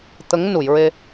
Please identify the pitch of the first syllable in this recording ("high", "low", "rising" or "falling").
rising